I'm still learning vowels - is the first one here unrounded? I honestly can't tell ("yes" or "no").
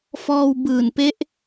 no